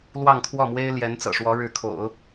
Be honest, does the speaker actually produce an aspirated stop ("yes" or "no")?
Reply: yes